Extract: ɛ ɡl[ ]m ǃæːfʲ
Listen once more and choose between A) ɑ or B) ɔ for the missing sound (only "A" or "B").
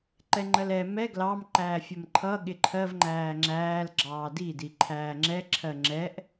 A